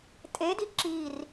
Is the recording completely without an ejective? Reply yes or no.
no